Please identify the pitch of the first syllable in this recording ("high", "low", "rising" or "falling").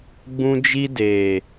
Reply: high